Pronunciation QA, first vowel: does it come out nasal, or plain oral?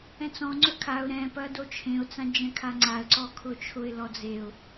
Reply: nasal